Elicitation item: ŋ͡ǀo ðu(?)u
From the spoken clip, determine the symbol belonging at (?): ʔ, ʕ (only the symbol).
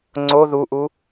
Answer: ʔ